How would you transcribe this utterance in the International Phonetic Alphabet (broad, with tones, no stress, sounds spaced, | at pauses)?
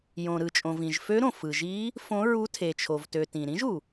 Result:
j õ˩ ɾ ɯ˩ t͡ʃʼ õ˩ v ĩ˩ ʒ f ø˧˥ ɾ õ˩ f ɯ˩ ʒ i˧˥ | f õ˧˥ ɹ u˧˥ tʰ e˩ t͡ʃʰ o˩ v t ø˩ t ĩ˩ ɾ ĩ˧˥ ʒ u˩